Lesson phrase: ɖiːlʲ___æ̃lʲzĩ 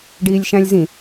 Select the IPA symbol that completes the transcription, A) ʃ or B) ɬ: A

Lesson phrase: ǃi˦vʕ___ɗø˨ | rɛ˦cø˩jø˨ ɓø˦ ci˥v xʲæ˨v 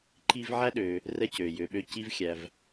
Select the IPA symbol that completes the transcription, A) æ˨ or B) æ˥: B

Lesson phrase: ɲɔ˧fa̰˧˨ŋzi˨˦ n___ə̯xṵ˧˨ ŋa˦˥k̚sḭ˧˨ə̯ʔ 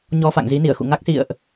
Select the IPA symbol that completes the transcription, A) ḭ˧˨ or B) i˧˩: B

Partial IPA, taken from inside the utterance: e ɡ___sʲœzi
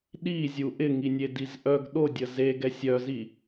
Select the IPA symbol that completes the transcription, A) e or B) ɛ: B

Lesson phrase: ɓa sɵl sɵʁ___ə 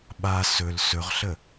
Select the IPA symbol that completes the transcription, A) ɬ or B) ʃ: A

